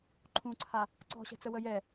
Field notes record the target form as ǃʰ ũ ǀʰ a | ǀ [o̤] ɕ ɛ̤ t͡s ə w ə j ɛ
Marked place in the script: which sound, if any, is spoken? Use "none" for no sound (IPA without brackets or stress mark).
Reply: ɔ̤